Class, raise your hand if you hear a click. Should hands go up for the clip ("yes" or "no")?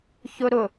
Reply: no